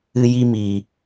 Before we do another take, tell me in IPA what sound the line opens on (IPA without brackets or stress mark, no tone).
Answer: ɨ